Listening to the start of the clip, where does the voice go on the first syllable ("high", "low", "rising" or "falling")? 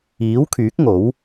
rising